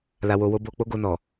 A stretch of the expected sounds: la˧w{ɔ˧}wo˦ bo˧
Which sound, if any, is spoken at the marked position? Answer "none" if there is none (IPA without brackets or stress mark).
o˧